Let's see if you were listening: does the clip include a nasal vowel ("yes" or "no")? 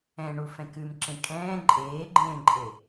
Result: yes